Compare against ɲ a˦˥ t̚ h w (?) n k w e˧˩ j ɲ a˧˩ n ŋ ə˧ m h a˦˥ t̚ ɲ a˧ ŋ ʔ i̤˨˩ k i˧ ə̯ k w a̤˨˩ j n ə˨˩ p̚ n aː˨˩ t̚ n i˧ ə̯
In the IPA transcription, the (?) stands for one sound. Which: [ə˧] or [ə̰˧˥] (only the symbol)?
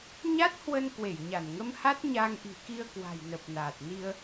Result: ə˧